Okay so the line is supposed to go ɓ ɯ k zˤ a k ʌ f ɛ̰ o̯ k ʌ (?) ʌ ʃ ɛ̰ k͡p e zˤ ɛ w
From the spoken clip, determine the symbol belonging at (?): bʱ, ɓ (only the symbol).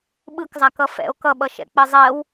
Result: ɓ